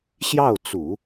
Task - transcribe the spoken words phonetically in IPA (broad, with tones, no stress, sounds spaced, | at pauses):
ɕ j ɑ˥˩ ʊ̯ t͡s u˨˩˦